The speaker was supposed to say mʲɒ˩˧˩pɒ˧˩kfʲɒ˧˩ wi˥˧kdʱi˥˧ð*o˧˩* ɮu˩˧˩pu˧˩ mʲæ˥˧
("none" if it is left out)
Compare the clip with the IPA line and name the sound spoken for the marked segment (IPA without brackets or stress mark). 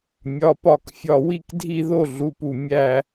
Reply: o˥˧